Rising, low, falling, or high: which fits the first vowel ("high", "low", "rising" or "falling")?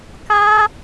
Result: high